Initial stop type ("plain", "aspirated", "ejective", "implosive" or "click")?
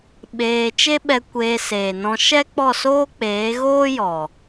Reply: implosive